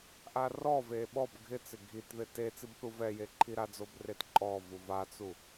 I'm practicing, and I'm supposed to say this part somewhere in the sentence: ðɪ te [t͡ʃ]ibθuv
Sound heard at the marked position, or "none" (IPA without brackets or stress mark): t͡s